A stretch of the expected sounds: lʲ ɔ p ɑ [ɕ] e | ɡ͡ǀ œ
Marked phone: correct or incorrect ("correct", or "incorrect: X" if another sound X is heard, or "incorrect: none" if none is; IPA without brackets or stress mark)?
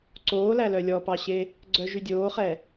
correct